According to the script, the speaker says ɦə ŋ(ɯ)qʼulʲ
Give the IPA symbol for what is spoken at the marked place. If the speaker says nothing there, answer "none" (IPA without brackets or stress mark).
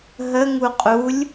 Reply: u